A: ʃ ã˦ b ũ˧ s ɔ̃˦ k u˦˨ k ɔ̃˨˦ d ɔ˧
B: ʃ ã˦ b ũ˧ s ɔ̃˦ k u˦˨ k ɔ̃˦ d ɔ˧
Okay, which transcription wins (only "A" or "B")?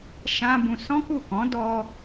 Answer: A